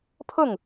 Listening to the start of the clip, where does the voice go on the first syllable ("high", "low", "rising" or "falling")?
falling